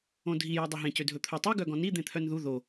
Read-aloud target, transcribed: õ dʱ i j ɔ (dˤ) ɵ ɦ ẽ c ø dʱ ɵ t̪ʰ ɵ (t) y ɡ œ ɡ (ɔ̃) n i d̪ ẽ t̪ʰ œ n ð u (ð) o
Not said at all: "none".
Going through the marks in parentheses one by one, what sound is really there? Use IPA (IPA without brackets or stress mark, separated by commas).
dˤ, tˤ, ɔ̃, ð